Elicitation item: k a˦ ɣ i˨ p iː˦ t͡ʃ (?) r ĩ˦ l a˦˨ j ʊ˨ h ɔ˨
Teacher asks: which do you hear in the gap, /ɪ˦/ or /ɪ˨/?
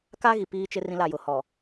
ɪ˦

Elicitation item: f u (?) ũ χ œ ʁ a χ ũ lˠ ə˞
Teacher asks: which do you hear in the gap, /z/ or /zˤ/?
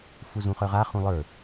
z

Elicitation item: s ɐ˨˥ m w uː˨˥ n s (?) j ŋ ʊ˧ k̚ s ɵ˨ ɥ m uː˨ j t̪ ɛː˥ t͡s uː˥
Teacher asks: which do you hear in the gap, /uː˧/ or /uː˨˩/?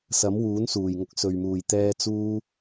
uː˨˩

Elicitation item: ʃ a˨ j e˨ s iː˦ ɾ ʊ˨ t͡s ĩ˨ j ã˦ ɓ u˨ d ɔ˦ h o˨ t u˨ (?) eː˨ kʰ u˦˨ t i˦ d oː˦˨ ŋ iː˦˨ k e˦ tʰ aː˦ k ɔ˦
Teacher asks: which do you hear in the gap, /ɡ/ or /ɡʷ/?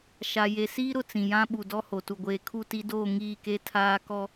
ɡʷ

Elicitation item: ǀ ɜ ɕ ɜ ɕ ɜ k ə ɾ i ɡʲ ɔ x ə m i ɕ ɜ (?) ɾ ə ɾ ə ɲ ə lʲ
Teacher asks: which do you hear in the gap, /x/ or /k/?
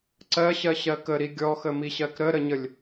k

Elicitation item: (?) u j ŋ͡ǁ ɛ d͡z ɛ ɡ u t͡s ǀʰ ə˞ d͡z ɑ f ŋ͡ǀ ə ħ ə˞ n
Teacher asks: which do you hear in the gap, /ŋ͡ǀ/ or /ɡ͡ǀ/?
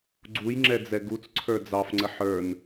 ɡ͡ǀ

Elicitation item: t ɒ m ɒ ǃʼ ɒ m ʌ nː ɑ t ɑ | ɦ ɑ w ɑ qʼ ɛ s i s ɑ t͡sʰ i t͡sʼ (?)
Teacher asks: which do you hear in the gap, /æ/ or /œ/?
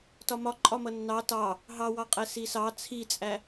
æ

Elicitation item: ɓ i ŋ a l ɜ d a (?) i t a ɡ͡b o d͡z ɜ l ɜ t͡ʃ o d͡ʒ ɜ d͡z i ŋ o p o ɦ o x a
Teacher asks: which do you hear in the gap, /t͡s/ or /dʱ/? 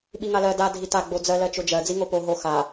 dʱ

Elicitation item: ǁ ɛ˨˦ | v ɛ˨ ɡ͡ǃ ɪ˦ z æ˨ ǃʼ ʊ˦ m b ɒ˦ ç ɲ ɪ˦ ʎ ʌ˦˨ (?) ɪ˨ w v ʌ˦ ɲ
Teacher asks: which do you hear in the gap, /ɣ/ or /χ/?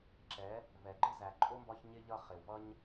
χ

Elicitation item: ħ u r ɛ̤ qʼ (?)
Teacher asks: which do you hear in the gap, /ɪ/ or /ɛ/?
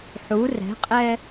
ɛ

